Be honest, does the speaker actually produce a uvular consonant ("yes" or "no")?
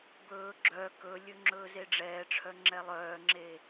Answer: no